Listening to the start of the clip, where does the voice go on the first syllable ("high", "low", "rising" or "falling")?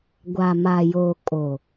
low